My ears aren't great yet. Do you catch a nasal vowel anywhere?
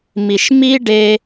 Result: no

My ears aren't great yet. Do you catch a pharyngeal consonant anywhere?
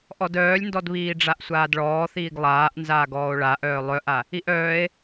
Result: no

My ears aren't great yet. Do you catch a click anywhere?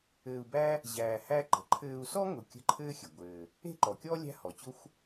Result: yes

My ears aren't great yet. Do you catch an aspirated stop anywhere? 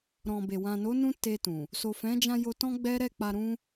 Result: no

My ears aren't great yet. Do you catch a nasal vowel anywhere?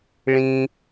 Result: yes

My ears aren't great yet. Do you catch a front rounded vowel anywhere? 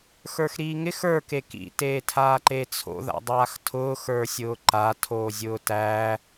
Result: no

